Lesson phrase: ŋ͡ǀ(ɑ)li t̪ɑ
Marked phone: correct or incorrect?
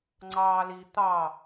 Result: incorrect